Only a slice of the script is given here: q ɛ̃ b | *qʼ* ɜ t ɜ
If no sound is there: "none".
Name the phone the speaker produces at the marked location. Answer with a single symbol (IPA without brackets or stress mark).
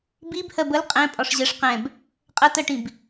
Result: qʼ